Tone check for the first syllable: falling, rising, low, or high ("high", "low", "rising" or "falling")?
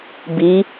rising